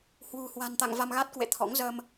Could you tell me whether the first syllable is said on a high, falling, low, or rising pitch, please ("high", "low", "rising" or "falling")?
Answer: low